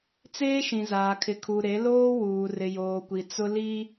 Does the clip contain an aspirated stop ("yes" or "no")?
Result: yes